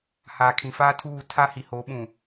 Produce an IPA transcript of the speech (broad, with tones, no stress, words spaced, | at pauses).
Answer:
haː˨kʰĩ˨faː˦tʰuː˦˨ tʰa˦hi˨ho˨˦ɓũ˨